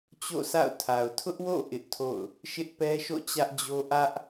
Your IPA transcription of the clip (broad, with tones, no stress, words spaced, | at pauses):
t͡ɕo̰˦˨sa̰˦˨ʊ̯tʰa˨ʊ̯ tʰʊ˦ʔwo̰˦˨ ʔɪ˦ʔtʰo̰˦˨ʊ̯ | ʃɪ˦ʔpɛ˦ʃo̰˦˨ t͡ɕä˦ʔd͡ʑo˦ ʔä˦ʔ